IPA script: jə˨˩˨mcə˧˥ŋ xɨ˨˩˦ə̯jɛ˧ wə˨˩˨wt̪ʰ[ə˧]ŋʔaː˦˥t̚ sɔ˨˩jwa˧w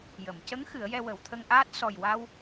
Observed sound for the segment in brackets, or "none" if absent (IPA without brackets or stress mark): ə˧